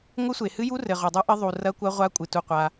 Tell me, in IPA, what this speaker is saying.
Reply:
ŋʷ ɨ˦˥ sʷ e˨ h ɨ˦˥ j u˦˥ r ɘ˨ ʁ o˨ dˤ u˦˥ ʔ ɘ˦˥ ðˤ u˨ r ɐ˦˥ kʷ ɐ˦˥ ʁʷ a˦˥ kʷʼ ɨ˨ t u˨ qʷ a˨

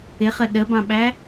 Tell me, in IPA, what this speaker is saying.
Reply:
ɪ χ ə ɗ ə b ɑ̃ ɓ æ

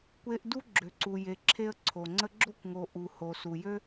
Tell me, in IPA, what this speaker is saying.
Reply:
kʷ e˦ ʔ d u˥ ɡ͡ǁ ø˨ ǀ u˨ j e˨ ǁʰ e˦ ə̯ ǀʰ o˩ ŋ͡ǀ ə˦ ɡ͡ǁ o˥ kʷ ŋ o˨ ʔ u˩ h o˩ s u˩ j ø˥

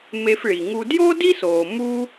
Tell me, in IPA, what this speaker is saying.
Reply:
m e˧ f ɭ i˩ ŋ u˧ d j o˥ d i˥ s oː˩ m u˧

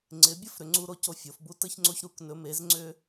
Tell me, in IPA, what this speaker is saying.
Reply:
ŋ͡ǀ ɪ˨˦ bʲ ə˥˨ f ɾ ʏ˨˦ ŋ͡ǀ u˦ ɾ o˦ c o˥˨ fʲ o˨˦ f b u˦ t ə˦ ç ŋ͡ǀ o˦ ç ɾ u˨˦ k n ɵ˨˦ m e˨˦ z ŋ͡ǀ ʏ˦

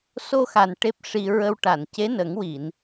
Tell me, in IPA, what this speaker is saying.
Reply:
s o˧ x a˨˩ n ʈ e˦˥ p̚ ʂ i˧ ɹ ə˧ w ʈ a˨˩˨ n c e˧˥ n ə˨˩˦ ŋ w i˨˩˨ n

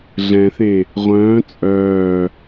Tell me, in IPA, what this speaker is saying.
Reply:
ɮ ɛ̃ θ ẽ | ʁʷ œ̃ː t͡sʼ œː

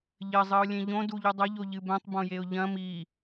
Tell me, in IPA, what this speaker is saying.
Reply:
ʎ ɘ zˤ ɨ ʊ̯ lʲ ẽ ʎ õ d u ʎ ɨ dˤ ɐ ʎ o ʎ ɨ b ɛ̃ tˤ b õ j e ʊ̯ ʎ ɐ̃ m i

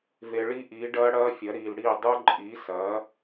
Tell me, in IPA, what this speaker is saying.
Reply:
v e˨ ɭ i˦˥ ʔ iː˩˥ ɖ ɐː˦˥ ɽ ɐː˦˥ fʲ ɐ˩˥ ɾ iː˨ l ɽ iː˥˩ dˤ u˦˥ ǃʼ iː˩˥ s ɐː˩˥

